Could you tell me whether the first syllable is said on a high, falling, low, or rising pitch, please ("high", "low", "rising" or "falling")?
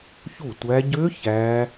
falling